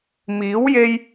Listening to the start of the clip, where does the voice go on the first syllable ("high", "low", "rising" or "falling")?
rising